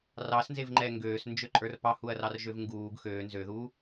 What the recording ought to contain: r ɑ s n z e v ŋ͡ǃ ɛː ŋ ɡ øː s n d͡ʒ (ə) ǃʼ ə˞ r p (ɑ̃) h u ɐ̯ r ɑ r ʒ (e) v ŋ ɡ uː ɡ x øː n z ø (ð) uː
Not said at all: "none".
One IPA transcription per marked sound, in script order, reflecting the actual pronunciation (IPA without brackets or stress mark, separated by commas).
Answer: ø, ɑ, ø, ð